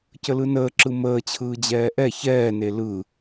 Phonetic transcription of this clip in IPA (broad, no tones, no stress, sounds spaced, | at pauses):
c ə l ɯ n əː ǁ ɯ m əː t͡ɕʰ ɯː d͡ʑ ɛː ʔ ɛ ç ɛː n e l ɯ